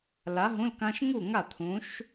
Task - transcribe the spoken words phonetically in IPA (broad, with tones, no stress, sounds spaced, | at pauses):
l a˨˥ ɦ ũ˧˥˧ l k ã˦˥ ʃ ŋ u˥˩ ŋ a˥˩ t̪ʰ ũ˨˥ ʃ